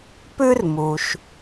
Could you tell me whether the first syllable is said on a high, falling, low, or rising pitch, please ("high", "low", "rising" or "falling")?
high